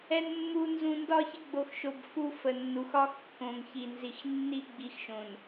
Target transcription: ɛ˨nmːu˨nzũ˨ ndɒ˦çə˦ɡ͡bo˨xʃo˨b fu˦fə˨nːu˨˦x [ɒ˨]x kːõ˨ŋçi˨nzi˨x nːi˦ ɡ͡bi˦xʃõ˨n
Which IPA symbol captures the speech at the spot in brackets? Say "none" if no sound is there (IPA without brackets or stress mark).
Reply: ɒ˦